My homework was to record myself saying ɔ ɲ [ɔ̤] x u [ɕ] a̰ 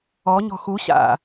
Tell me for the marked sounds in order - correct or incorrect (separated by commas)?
correct, correct